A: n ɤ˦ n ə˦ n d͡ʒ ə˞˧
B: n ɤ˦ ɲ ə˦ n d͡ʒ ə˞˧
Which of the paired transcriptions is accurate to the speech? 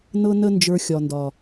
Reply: A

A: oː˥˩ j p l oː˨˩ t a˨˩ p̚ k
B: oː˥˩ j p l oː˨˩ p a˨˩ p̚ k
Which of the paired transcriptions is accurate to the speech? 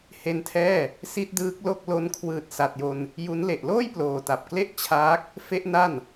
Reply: A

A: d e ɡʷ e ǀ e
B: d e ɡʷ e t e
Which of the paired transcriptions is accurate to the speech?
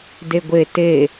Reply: B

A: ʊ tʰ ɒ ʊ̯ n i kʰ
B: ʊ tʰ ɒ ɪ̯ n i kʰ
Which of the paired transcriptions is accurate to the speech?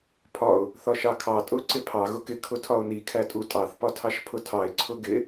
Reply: A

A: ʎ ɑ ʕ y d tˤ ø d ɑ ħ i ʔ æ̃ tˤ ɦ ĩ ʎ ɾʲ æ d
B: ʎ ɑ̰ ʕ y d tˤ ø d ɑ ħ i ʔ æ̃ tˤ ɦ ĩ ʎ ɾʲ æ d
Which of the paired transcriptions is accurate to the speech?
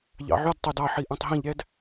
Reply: B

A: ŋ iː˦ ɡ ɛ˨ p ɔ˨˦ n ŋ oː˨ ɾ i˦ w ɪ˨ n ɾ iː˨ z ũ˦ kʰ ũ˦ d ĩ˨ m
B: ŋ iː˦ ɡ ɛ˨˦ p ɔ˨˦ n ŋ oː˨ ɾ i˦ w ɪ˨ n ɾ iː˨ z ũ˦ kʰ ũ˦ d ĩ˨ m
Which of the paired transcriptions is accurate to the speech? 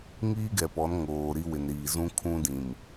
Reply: A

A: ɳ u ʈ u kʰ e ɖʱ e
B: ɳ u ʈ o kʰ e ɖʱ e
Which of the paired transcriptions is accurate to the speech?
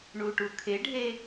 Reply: A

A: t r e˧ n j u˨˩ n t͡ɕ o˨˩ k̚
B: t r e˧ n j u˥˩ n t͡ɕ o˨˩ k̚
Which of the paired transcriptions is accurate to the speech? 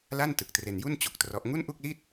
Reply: B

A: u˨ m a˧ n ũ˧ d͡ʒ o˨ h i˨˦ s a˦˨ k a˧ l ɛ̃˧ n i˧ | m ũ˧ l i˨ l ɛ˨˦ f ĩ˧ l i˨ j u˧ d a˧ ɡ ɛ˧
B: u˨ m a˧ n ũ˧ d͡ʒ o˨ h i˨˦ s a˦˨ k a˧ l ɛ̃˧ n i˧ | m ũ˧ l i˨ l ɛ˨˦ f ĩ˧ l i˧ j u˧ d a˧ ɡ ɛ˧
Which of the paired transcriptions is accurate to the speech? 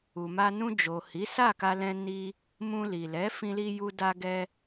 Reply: B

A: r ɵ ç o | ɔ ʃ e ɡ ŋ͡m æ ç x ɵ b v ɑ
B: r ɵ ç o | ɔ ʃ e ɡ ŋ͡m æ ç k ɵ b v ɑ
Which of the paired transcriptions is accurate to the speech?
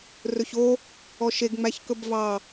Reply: B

